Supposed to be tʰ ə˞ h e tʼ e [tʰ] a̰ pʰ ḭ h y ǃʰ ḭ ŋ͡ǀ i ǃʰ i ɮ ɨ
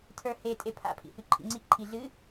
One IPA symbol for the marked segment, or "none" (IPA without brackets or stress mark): pʰ